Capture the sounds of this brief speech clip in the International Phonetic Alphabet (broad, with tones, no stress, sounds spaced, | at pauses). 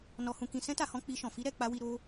n ɔ˧ h ũ˧ k ĩ˧ s ɛ̃˦ t a˧ h ɔ̃˧ k͡p i˧ ʃ ɔ̃˨ f i˧ ɾ ɛ˨ k͡p a˧ w i˧ ɾ o˧